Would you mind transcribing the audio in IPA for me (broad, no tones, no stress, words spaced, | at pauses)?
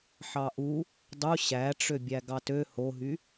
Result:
ħɑʔu | dˤu ɕæʈ͡ʂø bʲæɡɑtø hoɦy